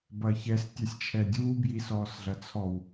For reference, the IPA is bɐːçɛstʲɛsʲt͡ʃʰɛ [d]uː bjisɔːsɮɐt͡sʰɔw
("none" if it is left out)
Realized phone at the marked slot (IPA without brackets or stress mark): dʲ